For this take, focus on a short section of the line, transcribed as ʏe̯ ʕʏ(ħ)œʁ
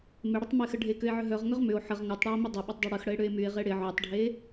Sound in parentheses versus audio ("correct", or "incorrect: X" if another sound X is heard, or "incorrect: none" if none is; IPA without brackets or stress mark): incorrect: ɦ